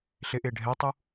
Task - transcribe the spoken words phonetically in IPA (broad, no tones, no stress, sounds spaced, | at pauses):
ɬ ɪ ʔ ɪː ɖʱ ɛ tˤ u